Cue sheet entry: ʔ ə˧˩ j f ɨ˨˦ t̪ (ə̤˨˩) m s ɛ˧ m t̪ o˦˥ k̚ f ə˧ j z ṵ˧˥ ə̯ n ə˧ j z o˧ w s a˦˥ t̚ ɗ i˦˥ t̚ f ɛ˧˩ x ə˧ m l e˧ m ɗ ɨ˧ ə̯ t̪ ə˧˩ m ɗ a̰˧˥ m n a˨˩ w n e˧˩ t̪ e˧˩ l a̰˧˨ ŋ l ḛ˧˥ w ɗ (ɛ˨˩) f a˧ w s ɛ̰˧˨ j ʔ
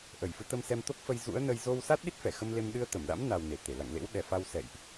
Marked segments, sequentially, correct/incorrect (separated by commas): incorrect, correct